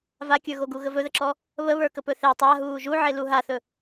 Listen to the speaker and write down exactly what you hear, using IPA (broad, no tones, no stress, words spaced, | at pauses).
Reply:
vakʲə˞ɣoɡu ɣəvɵðəǁɔ | βəβə˞kə pɵθe tˤaɦuː ʒuʕelu ɦaθɵ